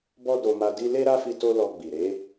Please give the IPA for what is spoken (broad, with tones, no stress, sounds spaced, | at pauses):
b ɔ˦ d o˧ m a˧ d i˦ l e˦ ɾ a˦ f i˧ t o˦ l ɔ˧ ɡ͡b i˨ ɾ e˨˦